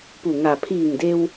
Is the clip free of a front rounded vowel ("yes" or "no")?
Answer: yes